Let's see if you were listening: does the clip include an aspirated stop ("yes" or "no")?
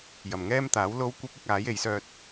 no